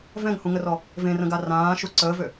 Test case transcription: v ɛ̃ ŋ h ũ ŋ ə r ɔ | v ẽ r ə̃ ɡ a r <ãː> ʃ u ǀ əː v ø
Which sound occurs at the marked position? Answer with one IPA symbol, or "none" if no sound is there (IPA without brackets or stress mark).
ãː